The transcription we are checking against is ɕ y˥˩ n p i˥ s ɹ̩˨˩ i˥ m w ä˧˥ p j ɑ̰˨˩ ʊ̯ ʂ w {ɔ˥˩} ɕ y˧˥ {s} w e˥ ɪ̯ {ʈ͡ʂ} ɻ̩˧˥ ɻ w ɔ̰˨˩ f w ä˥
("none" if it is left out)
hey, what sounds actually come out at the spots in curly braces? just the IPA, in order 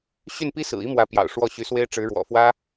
ɔ˥˩, s, ʈ͡ʂ

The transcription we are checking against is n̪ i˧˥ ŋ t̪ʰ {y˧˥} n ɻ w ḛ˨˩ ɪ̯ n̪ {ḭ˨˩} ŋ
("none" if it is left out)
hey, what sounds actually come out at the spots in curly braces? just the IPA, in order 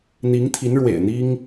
i˧˥, i˥

